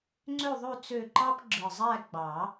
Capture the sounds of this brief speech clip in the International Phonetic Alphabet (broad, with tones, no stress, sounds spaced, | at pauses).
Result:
ŋ͡ǀ ø˥˧ ðˤ ø˥˧ t͡s ø˥˧ ǃ ɑ˥ p ɡ͡ǁ ɯ˨˩ zˤ æ˥˧ ɡ͡b ɑ˨˩˦